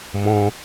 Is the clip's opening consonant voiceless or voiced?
voiced